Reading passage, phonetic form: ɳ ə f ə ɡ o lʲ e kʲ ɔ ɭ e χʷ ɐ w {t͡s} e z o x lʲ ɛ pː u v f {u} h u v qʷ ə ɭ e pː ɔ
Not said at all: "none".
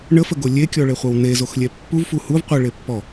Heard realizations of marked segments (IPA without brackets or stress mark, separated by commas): n, u